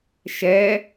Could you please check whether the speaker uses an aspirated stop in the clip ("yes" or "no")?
no